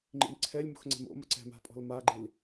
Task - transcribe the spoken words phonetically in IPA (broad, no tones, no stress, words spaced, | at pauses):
ŋ͡ǃḭmǀʰɛlʲ mo̤xŋ͡ǀɛ̤mo̰mɐ ǀɛ̤ma̤pʼɔ̤l maɡ͡ǃil